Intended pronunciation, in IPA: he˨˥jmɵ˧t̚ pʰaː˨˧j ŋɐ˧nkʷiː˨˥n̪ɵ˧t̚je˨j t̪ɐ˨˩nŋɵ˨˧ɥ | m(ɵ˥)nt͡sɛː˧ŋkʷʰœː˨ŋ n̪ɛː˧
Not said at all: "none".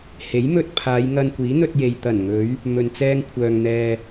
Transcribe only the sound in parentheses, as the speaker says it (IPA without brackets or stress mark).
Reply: ɵ˨